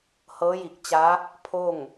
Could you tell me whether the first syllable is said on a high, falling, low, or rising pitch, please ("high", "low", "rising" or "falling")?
rising